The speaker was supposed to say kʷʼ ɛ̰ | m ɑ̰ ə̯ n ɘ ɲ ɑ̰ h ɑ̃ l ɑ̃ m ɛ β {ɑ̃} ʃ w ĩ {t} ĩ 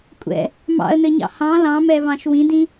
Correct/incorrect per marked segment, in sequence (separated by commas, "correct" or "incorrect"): correct, incorrect